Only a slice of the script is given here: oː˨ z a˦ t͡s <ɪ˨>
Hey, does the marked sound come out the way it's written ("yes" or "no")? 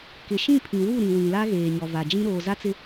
no